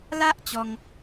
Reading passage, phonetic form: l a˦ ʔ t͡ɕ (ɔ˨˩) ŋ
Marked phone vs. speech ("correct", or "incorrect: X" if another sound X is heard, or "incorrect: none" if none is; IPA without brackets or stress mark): incorrect: ɔ˧